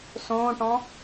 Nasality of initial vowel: nasal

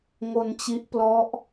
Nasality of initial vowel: oral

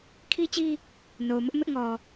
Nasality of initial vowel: oral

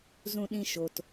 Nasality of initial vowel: nasal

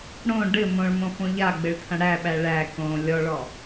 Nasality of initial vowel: nasal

